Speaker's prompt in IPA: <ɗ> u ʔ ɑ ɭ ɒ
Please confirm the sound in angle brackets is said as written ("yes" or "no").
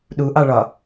yes